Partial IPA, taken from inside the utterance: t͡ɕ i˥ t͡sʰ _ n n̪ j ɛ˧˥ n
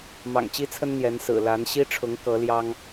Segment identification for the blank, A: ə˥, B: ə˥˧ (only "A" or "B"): A